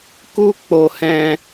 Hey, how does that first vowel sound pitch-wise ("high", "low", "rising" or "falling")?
high